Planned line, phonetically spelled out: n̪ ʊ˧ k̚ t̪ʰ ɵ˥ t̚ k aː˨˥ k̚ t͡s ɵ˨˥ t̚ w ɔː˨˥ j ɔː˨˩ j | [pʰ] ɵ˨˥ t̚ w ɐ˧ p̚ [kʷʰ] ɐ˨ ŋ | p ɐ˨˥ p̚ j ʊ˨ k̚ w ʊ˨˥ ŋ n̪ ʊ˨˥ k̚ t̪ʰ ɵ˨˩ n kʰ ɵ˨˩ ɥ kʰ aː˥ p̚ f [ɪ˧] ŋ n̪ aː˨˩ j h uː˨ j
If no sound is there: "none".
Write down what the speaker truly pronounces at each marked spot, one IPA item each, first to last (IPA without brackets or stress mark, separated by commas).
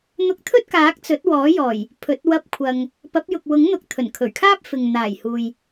pʰ, kʷʰ, ɪ˨